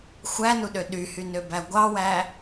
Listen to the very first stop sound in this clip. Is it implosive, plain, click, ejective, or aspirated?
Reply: implosive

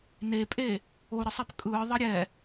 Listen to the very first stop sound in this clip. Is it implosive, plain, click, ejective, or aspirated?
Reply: ejective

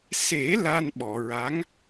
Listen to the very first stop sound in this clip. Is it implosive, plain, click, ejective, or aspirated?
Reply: implosive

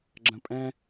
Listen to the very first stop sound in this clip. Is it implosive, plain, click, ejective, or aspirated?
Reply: click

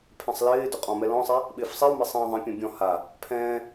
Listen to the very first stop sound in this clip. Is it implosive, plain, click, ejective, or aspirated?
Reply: aspirated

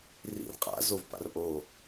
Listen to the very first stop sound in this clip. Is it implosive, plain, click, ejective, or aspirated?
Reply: ejective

